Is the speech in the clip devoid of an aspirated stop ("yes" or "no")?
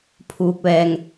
no